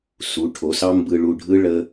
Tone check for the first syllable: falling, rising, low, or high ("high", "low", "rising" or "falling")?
rising